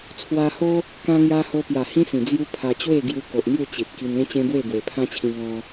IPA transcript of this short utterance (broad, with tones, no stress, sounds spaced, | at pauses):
t͡sʰ w a˧ h o˦ | k ã˧ ŋ j a˧ h o˧ p j a˨˩ h ĩ˦ s ĩ˨˩ d͡z j u˦ pʰ a˧ t͡ɕ w e˥˧ ɡ j u˧ k o˨ ʔ n̪ j u˥˧ t͡ɕ i˨ t̚ k i˧ n ẽ˦ t͡ɕ ẽ˦ b w e˥˧ b w e˨˩ pʰ ã˦ t͡ɕʰ ĩ˧ ŋ ɔ̃˧